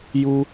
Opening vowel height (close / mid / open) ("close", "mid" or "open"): close